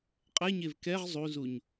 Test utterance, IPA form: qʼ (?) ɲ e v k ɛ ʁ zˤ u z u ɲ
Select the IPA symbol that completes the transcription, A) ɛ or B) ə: A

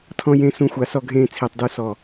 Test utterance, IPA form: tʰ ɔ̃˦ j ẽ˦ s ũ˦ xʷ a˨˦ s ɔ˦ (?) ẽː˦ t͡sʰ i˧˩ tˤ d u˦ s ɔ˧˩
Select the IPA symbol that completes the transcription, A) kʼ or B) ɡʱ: B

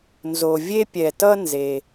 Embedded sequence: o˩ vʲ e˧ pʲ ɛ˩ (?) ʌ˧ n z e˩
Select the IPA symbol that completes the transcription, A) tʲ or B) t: B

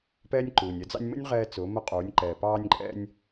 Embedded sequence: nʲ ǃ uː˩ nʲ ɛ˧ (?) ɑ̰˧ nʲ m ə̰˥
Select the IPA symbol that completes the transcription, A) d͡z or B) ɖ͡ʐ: A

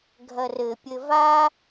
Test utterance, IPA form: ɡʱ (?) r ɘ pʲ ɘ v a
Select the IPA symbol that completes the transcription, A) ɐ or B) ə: A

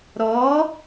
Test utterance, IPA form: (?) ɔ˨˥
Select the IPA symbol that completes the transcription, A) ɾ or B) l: A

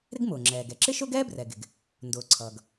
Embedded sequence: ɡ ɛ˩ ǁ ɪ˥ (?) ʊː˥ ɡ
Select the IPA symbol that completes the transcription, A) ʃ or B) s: A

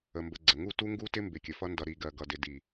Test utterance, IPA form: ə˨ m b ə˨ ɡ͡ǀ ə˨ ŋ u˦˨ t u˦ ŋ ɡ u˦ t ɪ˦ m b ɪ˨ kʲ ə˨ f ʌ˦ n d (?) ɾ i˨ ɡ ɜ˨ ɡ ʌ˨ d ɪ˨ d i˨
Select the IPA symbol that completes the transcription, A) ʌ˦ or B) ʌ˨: B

